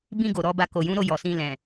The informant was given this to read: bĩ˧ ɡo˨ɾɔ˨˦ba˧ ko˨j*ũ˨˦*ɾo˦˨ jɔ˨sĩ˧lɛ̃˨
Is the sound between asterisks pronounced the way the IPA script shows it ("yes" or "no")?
yes